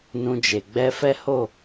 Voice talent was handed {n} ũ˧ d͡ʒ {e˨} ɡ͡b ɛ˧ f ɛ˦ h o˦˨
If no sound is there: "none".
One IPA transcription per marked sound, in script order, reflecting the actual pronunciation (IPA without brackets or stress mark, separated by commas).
n, e˨